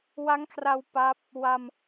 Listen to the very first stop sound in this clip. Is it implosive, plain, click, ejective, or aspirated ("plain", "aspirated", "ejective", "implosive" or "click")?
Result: aspirated